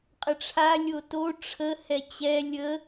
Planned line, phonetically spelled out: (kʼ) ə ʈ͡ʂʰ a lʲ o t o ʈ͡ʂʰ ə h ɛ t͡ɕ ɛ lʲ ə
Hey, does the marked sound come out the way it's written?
no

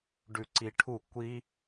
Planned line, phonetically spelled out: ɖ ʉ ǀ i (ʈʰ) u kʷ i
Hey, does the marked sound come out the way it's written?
yes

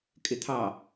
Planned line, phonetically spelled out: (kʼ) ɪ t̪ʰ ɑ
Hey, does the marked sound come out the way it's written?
yes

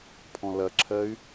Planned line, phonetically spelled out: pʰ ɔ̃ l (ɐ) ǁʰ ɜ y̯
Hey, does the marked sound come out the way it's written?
yes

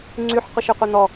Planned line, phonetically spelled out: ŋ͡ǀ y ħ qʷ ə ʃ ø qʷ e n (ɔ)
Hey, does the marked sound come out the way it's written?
yes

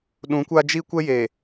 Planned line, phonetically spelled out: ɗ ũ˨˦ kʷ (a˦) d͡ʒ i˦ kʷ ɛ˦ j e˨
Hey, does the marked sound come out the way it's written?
yes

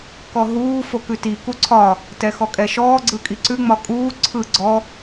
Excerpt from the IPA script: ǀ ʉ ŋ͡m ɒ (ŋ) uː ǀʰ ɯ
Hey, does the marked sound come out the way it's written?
no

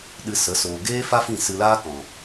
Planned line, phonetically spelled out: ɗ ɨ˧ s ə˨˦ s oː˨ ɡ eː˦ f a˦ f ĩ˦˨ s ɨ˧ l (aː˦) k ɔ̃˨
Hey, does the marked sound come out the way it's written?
yes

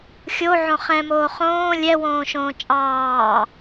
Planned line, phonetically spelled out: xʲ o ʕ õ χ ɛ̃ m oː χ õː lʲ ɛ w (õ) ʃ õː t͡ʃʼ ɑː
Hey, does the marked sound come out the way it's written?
no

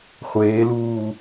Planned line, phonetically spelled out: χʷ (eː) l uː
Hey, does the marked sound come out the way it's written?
yes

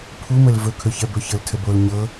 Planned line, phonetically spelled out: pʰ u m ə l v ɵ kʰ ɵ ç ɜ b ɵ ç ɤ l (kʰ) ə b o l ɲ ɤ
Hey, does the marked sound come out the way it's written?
no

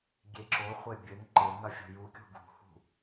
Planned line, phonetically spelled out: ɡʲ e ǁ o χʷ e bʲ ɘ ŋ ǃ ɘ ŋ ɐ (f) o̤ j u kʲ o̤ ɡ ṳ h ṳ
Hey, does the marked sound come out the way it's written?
no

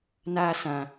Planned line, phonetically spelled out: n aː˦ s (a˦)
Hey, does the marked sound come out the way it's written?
no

